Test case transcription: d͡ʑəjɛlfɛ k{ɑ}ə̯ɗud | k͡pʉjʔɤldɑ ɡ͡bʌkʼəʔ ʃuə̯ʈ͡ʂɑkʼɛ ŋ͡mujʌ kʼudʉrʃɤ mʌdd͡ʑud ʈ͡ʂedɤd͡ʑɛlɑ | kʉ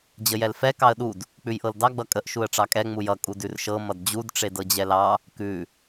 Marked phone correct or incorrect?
correct